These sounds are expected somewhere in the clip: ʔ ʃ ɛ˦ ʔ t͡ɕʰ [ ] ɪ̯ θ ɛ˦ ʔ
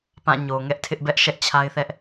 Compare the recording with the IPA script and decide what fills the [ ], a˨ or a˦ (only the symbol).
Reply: a˦